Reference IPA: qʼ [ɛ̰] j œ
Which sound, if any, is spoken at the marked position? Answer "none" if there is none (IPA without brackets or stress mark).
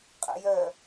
ɛ̰